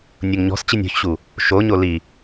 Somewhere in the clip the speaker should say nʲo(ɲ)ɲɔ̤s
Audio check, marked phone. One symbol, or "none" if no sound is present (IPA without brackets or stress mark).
ŋ